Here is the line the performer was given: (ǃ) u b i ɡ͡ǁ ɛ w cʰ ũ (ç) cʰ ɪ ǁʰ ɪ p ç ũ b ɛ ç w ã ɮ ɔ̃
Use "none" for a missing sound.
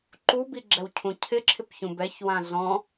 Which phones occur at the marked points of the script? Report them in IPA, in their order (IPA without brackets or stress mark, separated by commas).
ǃ, none